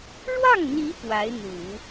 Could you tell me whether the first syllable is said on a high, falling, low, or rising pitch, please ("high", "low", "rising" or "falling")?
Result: falling